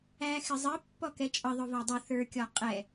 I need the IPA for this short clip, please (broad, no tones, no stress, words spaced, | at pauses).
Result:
æxɪzˤə pːɔkɛt͡ʃʼʌ ðˤʊvɑdˤu θə˞kʲɔqʼɛ